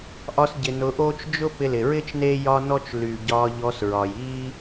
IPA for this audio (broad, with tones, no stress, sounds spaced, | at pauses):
ʔ ɒ˧ s ɟ ɪ˨ n ʊː˧ ʔ oː˦ t͡ʃ d͡ʒ ʊ˦ p ɪ˧ l ɪ˨ ɹ ɪː˦ t͡ʃ n e˦ j ɒ˦ n ɔ˦ t͡ʃ l y˨ ɟ ɒː˧ ʎ ɔ˧ s ɹ ɒ˨ j iː˦